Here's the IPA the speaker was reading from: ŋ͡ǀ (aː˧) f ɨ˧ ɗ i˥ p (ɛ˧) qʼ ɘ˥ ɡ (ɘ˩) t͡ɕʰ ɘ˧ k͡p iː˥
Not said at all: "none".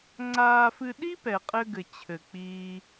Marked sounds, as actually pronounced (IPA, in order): aː˧, ɛ˧, ɘ˧

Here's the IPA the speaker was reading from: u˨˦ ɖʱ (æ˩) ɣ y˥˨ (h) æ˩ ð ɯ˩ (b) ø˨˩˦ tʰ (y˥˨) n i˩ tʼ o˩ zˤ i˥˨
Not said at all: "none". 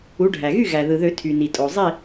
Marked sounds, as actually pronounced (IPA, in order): æ˩, ɣ, ð, y˩

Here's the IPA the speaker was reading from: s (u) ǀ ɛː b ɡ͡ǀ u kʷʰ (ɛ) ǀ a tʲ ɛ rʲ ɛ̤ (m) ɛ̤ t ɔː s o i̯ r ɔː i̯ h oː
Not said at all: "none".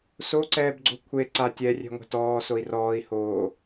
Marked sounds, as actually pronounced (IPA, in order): o, e, ŋʷ

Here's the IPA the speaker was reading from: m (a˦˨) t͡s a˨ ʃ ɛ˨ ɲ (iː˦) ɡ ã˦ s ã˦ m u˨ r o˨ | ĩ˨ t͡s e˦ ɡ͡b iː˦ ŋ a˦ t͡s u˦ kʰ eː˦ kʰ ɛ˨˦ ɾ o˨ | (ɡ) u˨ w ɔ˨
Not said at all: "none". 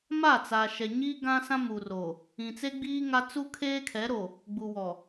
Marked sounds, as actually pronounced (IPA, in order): a˦˨, iː˦, ɡ͡b

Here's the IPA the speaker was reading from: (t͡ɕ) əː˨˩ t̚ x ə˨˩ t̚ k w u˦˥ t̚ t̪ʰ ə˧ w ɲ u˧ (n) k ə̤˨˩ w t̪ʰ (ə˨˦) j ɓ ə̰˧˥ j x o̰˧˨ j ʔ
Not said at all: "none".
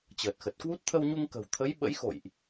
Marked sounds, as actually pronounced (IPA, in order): t͡ɕ, ŋ, ə˨˦

